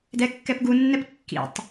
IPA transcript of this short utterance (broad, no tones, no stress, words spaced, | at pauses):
dɛkːɛpɡunːɛp kːḭtˤ